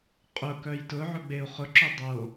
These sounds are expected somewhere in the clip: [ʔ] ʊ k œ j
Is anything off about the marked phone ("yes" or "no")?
yes